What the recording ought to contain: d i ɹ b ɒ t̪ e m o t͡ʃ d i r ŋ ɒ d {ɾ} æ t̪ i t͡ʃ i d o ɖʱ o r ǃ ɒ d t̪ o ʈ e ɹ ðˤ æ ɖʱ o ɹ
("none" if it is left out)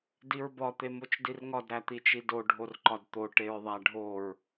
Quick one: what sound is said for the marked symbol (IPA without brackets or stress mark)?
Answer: ɾ